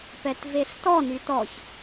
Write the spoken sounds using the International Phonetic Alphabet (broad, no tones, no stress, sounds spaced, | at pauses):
p ɛ t v e ɬ t ɔ n y t ɔ ç